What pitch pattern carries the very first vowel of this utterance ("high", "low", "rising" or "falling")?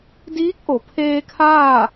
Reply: rising